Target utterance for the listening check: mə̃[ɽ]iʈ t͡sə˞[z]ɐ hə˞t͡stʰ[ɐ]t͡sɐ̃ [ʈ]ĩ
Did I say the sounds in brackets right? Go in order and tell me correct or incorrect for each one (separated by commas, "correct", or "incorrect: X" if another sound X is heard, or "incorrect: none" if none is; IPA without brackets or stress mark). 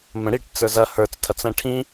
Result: correct, correct, correct, incorrect: ʈʰ